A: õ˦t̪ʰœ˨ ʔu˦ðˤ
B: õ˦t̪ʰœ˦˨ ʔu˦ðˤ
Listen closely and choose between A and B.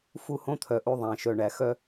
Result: A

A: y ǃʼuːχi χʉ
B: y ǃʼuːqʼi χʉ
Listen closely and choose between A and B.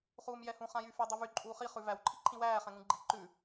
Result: A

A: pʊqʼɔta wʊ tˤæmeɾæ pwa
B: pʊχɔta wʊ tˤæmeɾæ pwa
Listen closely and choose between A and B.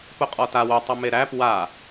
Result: A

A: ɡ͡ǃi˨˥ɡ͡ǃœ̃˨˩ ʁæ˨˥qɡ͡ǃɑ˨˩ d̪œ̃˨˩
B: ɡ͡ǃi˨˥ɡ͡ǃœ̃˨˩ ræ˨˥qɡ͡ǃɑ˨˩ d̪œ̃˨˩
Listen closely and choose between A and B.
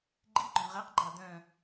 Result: A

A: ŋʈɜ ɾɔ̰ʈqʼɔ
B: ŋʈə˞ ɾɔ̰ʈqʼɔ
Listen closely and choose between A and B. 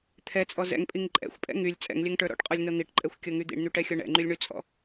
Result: B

